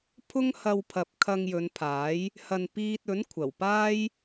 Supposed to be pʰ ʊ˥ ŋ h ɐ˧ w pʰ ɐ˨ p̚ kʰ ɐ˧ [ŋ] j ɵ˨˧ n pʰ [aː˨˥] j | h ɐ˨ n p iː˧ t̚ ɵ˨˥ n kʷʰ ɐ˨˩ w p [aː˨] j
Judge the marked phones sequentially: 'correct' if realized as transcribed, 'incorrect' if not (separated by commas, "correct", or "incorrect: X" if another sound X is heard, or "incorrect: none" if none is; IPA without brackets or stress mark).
correct, correct, incorrect: aː˥